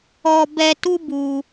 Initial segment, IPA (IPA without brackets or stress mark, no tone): ɔ